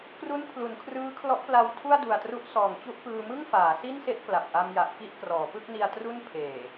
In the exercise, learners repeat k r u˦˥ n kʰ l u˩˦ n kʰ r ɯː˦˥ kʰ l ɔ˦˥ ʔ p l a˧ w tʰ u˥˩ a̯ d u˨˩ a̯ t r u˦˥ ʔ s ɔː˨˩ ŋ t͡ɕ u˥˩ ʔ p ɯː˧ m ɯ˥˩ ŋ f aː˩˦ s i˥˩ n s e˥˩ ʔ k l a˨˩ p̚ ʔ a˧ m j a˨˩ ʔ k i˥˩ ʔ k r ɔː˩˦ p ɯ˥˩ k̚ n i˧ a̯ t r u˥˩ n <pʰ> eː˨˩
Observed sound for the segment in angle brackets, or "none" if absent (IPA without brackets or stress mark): pʰ